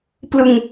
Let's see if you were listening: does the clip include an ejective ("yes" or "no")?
no